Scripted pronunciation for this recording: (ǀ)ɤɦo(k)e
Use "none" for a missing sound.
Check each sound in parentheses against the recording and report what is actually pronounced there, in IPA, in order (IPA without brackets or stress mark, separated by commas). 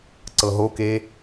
ǀ, k